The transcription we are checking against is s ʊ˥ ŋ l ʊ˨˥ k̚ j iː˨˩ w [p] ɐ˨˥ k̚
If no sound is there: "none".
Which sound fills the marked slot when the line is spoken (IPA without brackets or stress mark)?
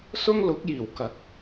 k